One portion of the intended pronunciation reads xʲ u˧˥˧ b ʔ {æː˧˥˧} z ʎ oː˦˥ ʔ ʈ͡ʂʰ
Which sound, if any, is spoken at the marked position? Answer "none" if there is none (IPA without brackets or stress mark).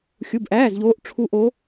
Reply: æː˧˥˧